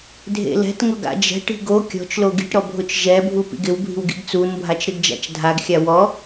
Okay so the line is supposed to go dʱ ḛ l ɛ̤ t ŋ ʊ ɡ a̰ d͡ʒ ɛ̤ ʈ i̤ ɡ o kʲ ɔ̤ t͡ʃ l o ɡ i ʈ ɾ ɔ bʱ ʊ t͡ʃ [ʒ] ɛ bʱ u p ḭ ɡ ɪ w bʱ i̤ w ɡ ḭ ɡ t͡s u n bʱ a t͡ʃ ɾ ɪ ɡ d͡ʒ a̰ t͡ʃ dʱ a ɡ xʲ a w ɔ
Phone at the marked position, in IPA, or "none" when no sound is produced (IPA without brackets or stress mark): ʒ